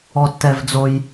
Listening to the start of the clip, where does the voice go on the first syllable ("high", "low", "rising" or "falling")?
high